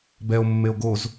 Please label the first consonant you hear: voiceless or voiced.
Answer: voiced